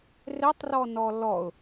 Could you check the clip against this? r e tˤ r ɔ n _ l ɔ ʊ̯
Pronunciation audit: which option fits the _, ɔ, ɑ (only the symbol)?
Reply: ɔ